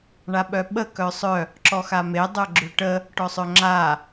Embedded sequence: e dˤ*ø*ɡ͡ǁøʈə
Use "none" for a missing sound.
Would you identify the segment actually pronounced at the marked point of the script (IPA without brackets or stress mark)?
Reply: œ